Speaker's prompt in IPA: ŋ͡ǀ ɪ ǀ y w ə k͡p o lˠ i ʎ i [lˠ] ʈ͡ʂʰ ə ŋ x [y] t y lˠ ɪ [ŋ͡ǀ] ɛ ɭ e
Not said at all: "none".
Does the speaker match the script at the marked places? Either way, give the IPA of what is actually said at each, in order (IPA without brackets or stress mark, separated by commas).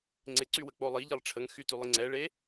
lˠ, y, ŋ͡ǀ